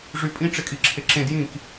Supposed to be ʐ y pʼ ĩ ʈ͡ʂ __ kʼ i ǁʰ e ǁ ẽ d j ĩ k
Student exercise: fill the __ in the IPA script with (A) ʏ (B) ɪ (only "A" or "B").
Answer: B